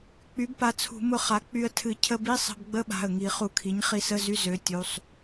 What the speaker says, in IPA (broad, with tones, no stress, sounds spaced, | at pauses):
k͡p y˩˥ b p a˩˧˩ t͡sʰ ṳ˧˩˧ m ʊ˧ χ a˩˥ k͡p y˧ ə̯ tʰ ɨ˧˩˧ cʰ ə˧ b i˧˥˧ sˤ ə̤˧ b ɡ͡b ə˧˥˧ ɓ a̤˩˧˩ ə̯ ŋ i˧˩˧ χ u˧˩˧ kʰ i˩˥ ɲ χ i˧ s ə˧˥˧ z y˧˥˧ z ø˩˥ tʲ u˩˧˩ sˤ